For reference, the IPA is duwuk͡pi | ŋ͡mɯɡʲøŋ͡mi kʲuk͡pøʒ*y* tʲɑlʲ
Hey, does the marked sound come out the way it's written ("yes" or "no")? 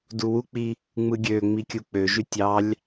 yes